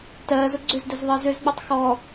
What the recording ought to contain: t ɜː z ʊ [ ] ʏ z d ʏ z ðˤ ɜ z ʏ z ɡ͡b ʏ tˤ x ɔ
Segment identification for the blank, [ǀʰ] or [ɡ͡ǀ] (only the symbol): ɡ͡ǀ